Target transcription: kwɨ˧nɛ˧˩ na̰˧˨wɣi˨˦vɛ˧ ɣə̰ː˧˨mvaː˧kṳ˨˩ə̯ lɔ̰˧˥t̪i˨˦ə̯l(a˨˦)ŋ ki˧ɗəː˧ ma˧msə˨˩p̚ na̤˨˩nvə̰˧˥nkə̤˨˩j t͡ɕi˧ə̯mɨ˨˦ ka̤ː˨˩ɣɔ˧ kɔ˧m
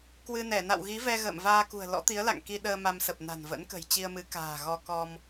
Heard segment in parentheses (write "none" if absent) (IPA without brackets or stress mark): a̰˧˨